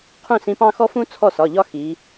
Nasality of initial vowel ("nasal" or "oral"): nasal